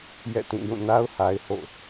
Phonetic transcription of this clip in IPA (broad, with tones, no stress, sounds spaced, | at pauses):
j ɛ̰˦˨ t ĩ˦˨ j ũ˦˨ n a˦ ʊ̯ h a˦ ɪ̯ h o̰˦˨